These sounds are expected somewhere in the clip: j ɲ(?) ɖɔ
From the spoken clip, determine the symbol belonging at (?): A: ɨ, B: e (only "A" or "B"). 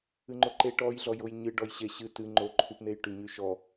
A